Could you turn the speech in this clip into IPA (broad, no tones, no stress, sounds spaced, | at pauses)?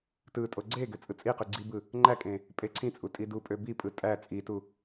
t ɯ tʼ o ɡ͡ǀ e ɡ ø t͡sʼ ɯ t͡sʼ i q y ɡ͡ǀ i b ɯ | ŋ͡ǃ æ kʼ ẽ | pʼ e ǀʰ ĩ t͡sʼ u tʼ i d u pʼ ø b i pʼ ɯ tʼ æ t͡sʼ i t u